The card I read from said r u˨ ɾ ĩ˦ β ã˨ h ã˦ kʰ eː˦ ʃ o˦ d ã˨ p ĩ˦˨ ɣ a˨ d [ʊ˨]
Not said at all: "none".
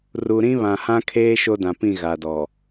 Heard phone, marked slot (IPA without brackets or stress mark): ɔ˨